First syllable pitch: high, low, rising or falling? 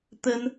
high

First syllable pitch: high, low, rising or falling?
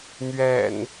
low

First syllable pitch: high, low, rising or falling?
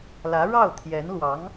rising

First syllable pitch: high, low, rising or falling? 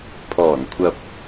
low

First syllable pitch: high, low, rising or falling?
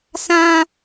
high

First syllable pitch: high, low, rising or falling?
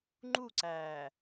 falling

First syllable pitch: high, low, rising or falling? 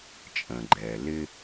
low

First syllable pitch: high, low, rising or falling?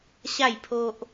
falling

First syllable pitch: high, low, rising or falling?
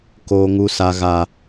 high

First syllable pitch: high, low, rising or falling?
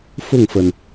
falling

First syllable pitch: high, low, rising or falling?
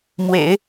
low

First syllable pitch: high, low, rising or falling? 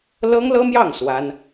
high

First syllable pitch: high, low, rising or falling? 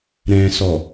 low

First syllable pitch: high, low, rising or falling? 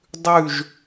falling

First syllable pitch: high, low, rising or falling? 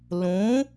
rising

